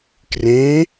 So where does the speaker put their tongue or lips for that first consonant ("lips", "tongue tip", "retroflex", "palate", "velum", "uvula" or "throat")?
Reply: velum